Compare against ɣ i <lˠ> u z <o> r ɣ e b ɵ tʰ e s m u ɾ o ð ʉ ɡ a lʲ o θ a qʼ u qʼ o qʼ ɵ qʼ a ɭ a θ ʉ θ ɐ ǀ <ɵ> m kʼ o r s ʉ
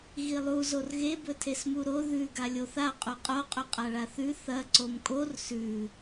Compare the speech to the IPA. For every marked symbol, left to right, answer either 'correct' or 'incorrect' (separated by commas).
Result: correct, correct, incorrect